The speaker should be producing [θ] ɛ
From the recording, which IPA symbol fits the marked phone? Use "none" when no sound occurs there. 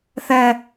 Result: θ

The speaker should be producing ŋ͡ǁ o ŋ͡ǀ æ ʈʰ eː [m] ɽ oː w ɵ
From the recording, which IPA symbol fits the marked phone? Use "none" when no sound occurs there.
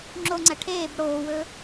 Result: b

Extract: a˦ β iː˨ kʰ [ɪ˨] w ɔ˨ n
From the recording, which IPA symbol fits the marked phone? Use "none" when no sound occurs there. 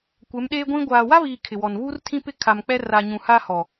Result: ɪ˨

